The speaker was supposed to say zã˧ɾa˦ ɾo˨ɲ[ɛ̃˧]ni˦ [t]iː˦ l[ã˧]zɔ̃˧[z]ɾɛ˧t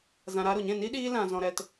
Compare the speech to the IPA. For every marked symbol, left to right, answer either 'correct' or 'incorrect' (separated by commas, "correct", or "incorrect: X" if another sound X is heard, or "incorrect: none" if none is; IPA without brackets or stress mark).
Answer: incorrect: ɛ̃˦˨, incorrect: ɗ, correct, incorrect: none